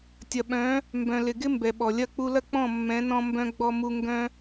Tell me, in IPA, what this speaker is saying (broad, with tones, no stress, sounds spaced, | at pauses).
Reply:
tʲ ɐ˨ ɓ œ̃˨˦ | m b œ̃˨ l ɪ˨ ɡ ɪ˦ m b ɛ˨ ɓ ɔ˨ lʲ ɐ˦˨ k͡p u˧ l ɐ˦ k͡p ɔ̃˦˨ mː ɛ̃˨˦ n ɔ̃˧ m b œ̃˧ ɡ͡b ɔ˧ m u˧ ŋ ɡ œ̃˧